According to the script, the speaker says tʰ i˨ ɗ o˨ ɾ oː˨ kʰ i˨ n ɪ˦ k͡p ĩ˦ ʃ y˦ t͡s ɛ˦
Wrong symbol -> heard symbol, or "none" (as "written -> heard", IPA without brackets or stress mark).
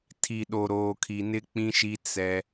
y˦ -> i˦